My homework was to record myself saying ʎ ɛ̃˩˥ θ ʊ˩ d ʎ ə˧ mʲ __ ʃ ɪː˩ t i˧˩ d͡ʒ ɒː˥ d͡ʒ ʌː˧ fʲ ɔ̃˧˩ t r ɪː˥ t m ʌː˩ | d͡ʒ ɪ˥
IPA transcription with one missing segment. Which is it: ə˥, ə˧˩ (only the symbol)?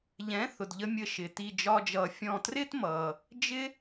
ə˧˩